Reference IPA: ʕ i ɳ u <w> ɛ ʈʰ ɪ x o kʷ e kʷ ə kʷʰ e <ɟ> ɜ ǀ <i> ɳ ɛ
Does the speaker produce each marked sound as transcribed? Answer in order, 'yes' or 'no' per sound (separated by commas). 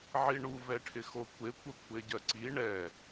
no, yes, yes